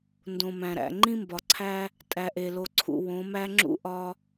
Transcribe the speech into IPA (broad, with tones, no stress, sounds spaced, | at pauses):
n d õ˨ m æ̃˨ ɾ æ̰˨ ŋ͡ǃ ĩ˦ m b ɒ˨ ǀʰ æ˦ | tʼ æ˨ ʔ e˨ l o˨ ǀʰ ṵ˨ w õ˨˦ m æ˦ ŋ͡ǁ ṵ˦ ʔ ɒ˦